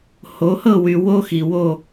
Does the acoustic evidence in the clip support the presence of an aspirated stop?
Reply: no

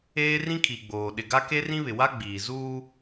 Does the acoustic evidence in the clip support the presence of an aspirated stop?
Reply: yes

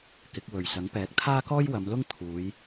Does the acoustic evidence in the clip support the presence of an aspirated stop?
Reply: yes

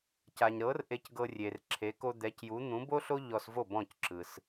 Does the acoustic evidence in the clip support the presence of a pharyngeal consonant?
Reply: no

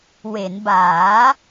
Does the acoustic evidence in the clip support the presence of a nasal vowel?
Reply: no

